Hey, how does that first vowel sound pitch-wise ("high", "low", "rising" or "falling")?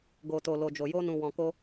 low